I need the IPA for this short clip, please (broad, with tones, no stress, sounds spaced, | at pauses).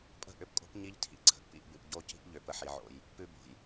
pʼ ə̤˦˨ ʔ ʏ˦ p kʼ o̤˦ p ɲ i˦ ʎ tʰ ḭ˨ ǀʰ ə̤˨ ʔ p ḭ˦˨ ʔ b ʉ˨ p ɟ o˦˨ c i̤˦ ʔ ʎ ʏ˨ p ə˦ ħ i˨˦ ʕ o̰˦ j | p ʉ˦ b o̤˨ j